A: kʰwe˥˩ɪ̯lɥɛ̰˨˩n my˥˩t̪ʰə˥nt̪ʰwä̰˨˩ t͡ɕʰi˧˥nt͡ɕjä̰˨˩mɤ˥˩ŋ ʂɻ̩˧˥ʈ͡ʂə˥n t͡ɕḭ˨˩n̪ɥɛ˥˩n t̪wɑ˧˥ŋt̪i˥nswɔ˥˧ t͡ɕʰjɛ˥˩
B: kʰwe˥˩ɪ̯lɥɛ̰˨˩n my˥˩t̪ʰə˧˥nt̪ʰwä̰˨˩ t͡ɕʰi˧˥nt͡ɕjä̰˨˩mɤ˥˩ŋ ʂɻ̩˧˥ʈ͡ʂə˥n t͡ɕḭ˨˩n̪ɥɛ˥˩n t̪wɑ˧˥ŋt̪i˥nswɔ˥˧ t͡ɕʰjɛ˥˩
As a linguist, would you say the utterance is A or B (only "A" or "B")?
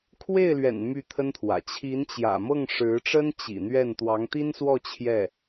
A